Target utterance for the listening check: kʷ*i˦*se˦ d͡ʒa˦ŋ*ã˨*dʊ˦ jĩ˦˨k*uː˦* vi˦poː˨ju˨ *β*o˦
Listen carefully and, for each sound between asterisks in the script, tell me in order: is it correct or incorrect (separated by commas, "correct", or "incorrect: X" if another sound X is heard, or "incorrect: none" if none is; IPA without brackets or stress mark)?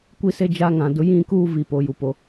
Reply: correct, correct, correct, incorrect: p